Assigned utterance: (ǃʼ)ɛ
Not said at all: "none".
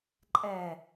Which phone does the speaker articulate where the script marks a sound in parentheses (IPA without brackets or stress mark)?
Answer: ǃʼ